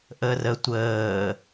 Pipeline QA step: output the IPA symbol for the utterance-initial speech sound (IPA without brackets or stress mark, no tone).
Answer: ʔ